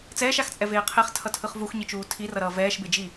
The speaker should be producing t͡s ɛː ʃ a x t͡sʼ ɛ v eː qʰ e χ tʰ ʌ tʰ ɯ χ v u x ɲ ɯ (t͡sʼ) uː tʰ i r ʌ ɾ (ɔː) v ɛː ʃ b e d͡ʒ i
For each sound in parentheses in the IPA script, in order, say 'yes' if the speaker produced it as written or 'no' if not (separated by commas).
no, no